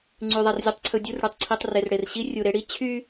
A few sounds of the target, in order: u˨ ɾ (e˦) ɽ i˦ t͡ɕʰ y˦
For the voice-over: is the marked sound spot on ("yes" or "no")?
yes